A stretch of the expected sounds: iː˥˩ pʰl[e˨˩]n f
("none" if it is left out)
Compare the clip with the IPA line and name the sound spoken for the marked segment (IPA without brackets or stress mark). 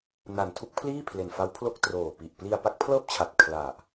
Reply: e˨˩